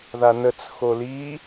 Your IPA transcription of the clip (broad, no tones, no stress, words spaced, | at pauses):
ðanət͡s xoli